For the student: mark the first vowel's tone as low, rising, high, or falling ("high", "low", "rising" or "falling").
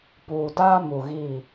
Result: low